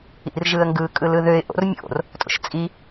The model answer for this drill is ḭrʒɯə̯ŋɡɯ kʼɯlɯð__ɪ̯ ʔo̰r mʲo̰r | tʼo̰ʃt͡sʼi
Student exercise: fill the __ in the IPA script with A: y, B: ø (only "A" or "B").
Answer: B